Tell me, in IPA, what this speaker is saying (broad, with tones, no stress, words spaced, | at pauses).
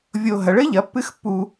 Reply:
vʲo˧ ɦɐ˨˥ɭ ɘ˦˥ʎɐ˨˥pːɨ˦˥xpːu˧